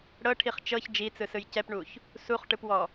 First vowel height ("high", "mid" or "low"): mid